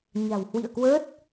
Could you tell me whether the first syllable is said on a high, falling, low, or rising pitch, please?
low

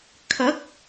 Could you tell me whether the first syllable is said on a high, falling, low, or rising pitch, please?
rising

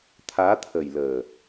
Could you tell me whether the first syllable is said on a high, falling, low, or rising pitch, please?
rising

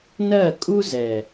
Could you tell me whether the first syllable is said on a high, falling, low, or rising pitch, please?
falling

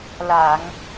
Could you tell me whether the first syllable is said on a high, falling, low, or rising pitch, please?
low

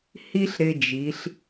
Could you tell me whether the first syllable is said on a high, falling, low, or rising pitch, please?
high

